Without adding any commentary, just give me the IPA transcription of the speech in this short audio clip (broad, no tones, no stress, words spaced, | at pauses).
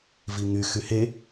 viŋy xyhe